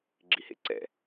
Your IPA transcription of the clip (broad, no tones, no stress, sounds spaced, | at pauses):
ɡ͡ǁ i h ḛ ǀ ɛ̰